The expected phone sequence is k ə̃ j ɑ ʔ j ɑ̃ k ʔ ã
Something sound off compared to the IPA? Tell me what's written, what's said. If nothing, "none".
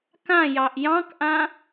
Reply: ə̃ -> ã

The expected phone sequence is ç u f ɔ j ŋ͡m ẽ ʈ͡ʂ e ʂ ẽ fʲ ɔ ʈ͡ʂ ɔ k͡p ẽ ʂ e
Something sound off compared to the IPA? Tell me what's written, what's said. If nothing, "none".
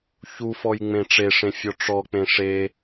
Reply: none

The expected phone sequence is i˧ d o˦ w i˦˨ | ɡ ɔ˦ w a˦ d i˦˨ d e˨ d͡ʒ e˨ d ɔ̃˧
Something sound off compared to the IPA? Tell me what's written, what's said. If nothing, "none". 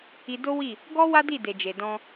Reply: none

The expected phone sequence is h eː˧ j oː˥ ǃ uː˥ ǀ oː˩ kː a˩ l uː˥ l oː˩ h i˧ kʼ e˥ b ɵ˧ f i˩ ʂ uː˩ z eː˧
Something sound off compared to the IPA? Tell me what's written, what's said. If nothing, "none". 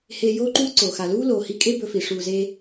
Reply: kː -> x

